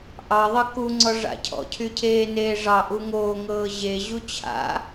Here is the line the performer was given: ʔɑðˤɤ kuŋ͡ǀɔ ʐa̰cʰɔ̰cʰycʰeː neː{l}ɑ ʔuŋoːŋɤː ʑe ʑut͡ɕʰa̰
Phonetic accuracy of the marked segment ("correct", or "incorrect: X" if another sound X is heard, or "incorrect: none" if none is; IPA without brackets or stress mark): incorrect: ʐ